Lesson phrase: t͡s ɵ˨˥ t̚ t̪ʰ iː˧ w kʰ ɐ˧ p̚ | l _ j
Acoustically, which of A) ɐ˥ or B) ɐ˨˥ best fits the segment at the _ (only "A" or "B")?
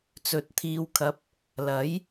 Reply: B